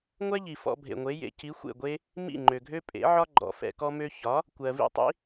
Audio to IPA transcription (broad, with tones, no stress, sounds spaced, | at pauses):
ŋʷ ɛ˥ ʎ i˩ f ɔ̰˧ bʱ ḛ˩ ŋʷ e˩˥ j ḛ˩˥ c i˩˥ xʷ ḛ˥˩ ɡʷ e˥ | m ḭ˥˩ ŋ͡ǃ ø˩ ɡʱ ø˥ pʼ ḛ˩˥ ʕ ɒ˥ ɡ͡ǃ ɔ̰˩ f ɛ̰˧ k ɔ˥ m ø˥ ç ɒ˩˥ | kʷ ɜ˩ v ḭ˥˩ tˤ ḭ˥